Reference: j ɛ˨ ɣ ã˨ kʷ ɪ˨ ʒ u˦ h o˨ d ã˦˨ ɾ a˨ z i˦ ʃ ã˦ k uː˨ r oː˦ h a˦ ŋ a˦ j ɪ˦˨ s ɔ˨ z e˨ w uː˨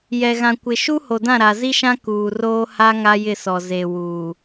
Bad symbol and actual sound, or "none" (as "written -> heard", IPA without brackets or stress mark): ʒ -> ʃ